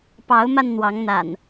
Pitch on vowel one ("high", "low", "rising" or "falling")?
rising